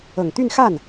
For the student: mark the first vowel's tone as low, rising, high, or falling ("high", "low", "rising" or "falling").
low